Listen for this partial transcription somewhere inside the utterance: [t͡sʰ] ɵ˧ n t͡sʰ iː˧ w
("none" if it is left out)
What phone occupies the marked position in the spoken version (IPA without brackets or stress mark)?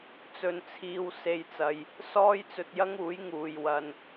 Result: t͡s